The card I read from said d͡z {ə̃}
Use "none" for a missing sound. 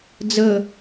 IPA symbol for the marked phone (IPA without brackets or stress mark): ə